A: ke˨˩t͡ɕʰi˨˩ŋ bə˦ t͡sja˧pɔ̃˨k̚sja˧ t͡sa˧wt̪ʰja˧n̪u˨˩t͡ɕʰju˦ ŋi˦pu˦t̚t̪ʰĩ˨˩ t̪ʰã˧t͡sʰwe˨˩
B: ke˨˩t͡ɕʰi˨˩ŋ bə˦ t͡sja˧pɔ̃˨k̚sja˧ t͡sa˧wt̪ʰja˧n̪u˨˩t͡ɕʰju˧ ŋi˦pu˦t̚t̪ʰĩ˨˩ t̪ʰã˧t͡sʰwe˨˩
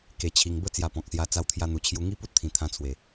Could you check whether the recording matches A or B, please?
B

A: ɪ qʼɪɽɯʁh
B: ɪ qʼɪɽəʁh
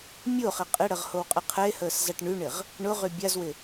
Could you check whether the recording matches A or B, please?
B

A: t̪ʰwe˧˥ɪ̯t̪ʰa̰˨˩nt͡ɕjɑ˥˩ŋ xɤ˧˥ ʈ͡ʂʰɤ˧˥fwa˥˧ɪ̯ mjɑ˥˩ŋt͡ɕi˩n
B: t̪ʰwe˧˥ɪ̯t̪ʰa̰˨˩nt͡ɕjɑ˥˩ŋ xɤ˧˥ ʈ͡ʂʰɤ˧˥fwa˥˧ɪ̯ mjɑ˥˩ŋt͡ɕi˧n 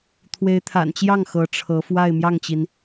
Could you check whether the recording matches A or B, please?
A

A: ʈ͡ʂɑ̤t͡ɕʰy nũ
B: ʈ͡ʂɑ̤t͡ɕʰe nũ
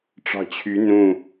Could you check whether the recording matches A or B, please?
A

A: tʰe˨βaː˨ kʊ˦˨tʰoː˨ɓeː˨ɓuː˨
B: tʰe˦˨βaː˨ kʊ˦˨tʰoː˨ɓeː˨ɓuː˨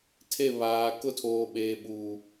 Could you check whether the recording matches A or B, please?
B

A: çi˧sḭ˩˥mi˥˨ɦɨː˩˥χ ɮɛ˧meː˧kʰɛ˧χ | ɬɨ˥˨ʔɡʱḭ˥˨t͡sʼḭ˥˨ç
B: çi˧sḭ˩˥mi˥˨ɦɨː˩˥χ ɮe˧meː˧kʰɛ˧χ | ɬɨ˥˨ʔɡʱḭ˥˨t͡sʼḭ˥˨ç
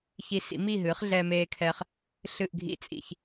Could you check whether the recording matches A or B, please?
A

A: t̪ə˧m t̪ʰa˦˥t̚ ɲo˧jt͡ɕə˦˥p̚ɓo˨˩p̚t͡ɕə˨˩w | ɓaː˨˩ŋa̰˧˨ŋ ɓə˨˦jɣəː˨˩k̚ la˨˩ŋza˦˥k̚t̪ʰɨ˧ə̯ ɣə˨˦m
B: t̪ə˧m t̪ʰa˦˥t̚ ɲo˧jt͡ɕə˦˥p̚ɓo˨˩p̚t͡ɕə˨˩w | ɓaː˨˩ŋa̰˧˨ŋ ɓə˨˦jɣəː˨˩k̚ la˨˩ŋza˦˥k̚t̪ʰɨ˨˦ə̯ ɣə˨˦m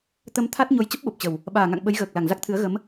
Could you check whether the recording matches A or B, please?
B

